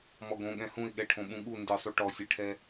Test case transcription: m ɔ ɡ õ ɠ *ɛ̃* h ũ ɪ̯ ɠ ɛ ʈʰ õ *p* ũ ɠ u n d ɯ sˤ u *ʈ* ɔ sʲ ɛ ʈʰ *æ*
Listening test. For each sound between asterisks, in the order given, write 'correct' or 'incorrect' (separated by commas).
correct, incorrect, correct, incorrect